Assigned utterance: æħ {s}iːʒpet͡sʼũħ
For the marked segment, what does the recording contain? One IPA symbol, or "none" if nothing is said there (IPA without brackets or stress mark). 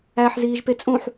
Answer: z